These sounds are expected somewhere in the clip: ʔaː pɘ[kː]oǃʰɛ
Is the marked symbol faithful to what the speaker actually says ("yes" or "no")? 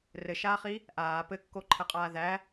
yes